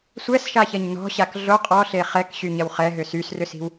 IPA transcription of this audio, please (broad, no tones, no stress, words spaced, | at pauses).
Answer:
sʷɛsʃaçɐɲ nɔ̤ɕak ɮo qʼɔɬe χɛkɕyɲɐw χɛɦʏ sysrʏsi̤w